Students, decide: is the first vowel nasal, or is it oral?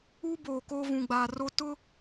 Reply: oral